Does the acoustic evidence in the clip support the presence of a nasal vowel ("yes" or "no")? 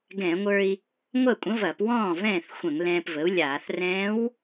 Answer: yes